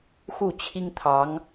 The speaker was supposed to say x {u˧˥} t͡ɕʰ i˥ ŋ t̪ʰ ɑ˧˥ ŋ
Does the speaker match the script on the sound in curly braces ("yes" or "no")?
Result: no